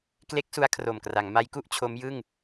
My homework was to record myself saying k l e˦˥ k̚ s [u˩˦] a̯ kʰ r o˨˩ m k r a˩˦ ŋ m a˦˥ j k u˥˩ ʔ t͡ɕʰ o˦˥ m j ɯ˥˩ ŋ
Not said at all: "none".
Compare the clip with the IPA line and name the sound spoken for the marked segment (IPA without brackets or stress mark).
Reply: u˦˥